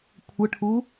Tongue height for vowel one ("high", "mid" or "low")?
mid